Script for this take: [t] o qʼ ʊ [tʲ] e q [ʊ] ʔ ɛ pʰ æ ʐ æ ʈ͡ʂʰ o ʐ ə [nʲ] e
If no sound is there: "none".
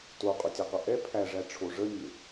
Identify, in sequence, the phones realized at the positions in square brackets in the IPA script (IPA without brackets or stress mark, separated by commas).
t, tʲ, ɵ, nʲ